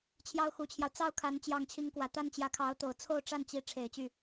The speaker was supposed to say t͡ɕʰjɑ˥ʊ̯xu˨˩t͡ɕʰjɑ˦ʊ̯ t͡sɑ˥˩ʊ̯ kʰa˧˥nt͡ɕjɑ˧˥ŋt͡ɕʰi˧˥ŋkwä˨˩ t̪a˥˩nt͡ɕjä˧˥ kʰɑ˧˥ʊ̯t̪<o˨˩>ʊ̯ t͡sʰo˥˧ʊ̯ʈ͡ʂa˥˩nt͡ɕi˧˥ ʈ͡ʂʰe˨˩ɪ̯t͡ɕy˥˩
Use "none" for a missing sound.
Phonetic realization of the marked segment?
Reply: o˨˩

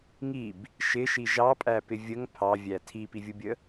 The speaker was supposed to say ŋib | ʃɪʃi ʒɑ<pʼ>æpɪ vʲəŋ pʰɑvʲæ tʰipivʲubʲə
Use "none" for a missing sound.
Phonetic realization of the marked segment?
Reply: pʼ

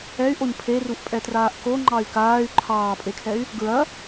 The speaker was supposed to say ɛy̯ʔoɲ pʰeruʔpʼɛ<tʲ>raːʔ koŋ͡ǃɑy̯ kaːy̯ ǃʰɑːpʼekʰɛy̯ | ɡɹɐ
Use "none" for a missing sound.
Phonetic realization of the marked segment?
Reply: t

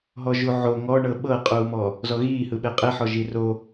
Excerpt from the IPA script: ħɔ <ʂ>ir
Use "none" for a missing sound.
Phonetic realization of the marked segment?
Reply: ʒ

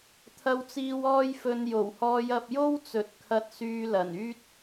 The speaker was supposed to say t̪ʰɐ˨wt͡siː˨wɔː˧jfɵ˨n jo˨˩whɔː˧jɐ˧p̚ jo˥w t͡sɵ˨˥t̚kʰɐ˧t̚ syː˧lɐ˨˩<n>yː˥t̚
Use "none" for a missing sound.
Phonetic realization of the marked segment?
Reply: n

